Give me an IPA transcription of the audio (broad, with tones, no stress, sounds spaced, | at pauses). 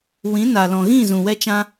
w ĩ˨˦ n a˨ l ɔ̃˨ ɣ ĩ˦˨ z ũ˨ w ɛ˧ t͡ʃ ã˧